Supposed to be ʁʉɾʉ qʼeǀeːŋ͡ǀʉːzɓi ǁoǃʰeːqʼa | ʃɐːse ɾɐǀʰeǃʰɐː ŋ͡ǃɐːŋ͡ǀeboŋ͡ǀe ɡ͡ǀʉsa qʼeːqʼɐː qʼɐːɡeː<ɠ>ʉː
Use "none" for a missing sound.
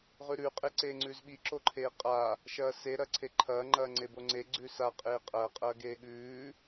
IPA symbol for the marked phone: ɠ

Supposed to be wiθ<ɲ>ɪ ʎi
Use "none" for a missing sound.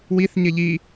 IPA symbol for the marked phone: ɲ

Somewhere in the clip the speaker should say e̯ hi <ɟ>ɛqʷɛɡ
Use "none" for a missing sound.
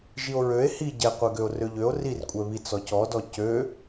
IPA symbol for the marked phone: ɟ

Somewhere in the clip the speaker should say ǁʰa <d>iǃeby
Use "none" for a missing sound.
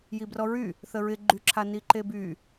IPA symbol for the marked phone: n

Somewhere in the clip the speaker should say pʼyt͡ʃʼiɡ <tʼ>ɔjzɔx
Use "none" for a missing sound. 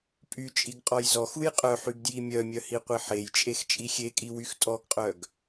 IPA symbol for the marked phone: qʼ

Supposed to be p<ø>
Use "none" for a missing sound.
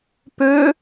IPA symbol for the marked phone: ø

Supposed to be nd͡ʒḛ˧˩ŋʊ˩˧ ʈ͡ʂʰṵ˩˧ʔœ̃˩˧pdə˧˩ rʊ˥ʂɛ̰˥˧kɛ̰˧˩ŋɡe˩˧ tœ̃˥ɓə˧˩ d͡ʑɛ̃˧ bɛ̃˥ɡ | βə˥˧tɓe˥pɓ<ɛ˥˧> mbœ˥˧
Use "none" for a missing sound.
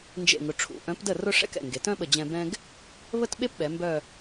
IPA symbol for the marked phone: ɛ˩˧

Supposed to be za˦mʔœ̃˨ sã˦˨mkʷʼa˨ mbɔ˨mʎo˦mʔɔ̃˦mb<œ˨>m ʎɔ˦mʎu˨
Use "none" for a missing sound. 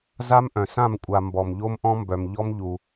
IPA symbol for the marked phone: œ˨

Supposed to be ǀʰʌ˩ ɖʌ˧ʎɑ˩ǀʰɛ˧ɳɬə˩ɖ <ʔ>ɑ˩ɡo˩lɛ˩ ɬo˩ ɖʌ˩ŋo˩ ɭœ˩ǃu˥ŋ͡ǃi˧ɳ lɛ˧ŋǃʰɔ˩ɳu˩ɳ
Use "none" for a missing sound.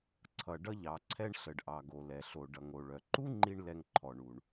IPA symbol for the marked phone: ʔ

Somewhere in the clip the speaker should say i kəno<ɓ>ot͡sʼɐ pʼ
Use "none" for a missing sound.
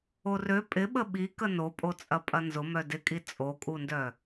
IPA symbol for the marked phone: pʼ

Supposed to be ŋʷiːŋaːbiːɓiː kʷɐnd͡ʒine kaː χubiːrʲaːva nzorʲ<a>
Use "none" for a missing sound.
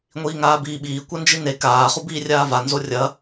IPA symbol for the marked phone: ɐ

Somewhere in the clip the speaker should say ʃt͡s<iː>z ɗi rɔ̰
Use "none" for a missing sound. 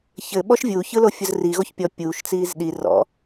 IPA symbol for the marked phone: iː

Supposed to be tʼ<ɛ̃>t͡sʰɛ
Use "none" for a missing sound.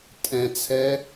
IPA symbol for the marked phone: ɛ̃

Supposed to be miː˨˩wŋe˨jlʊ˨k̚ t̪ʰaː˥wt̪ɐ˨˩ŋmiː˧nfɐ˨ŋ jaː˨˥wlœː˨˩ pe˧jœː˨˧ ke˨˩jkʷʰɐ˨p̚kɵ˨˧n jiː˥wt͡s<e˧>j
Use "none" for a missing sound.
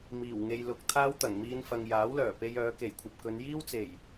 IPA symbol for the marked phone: e˨˩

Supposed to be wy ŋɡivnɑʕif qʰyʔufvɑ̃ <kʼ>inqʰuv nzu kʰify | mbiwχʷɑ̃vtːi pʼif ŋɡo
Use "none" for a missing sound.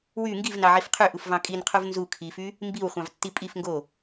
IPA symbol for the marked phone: kʼ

